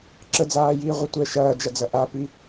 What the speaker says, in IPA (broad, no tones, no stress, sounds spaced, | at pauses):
ǁ ə d͡z aː j iː ʁʷ ɐ tʷ ɛ ʃ ɐː d͡ʒ ɐ d͡z ɐ ʔ a p i